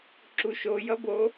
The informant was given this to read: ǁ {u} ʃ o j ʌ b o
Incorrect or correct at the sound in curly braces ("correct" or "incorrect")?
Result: correct